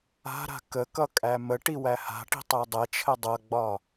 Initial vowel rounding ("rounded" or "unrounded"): unrounded